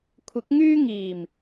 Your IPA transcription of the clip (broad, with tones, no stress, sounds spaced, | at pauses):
kʷʰ ɪ˨˥ k̚ ŋ yː˥ ŋ iː˨˩ m